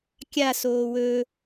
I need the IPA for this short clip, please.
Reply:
kʲ a s oː w ɵ

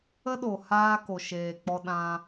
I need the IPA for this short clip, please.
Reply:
ə˦ ɗ o˨ h aː˧ k o˨ ʃ eː˨ k͡p ɔ˧ ɗ ã˧

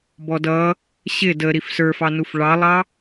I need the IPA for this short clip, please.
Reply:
b ɔ d ʌ | ɕ ɪ d ə ɾ i f s ə˞ f ɑ n u f ɭ ɑ lˠ ɑ

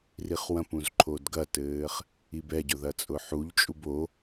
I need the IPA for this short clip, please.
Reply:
r i χ w ɐ̃ p ũ z ǃʰ o d ɡ ɐ t ɘː χ | i b ɛ ɟ ʊ ð ɐ t͡sʼ ʊ ħ u ʎ t͡ʃʼ u b o

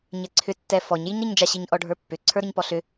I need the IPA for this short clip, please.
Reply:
ɲ ɛ ǀʰ ʏ tː ɛ f ɔ ɲ j i ɲ ɾ i ɲ d͡ʒ a ɕ i ɲ ʔ ɔ ɖʱ ə˞ pː ʏ ǀʰ ə˞ ɾ ʏ ɲ p ɔ ɬ ʏ

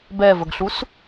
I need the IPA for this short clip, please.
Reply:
b ɛ v ə ɡ ɬ u s

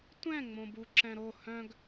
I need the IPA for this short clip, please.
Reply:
tʷ ɛ̃ ŋ͡m õ b u ǁ ɛ̃ ɾ o h œ̃ ɡ

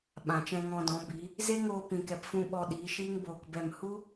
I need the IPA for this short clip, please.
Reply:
ɓ ã˨ t͡ʃ ɛ̃˧ ŋ ɔ̃˧ d ɔ̃˨˦ b i˨˦ | z e˦ ŋ oː˧ p ĩ˨ k ɛ˨ p f ũ˧ ɓ ɔ˧ ɗ iː˨˦ ʃ iː˦ ŋ b oː˧ k b ɛ˦˨ m h u˦

